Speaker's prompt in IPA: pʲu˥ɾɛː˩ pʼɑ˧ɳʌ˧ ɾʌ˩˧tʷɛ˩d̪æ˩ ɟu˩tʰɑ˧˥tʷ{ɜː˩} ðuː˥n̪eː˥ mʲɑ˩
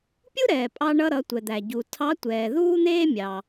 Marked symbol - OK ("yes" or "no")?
no